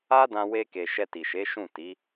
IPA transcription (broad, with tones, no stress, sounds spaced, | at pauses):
a˦ d ã˧ w e˧ k e˨ ʃ ɛ˧ t i˨ ʃ e˨˦ ʃ ũ˦˨ t i˨˦